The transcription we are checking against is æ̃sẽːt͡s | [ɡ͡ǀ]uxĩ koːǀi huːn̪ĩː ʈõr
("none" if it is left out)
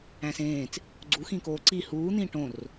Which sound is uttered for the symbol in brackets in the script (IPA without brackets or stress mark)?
ɡ͡ǀ